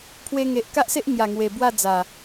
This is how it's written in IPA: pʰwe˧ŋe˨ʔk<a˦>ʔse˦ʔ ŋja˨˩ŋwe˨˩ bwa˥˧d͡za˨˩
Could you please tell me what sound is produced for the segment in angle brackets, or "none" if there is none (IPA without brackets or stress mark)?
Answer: a˦